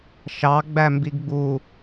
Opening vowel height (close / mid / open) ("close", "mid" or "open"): open